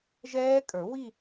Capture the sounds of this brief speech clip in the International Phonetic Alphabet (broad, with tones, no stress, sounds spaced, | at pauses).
ʒ ɛː˦˥ kʼ ə˞˨˩˦ w i˥˧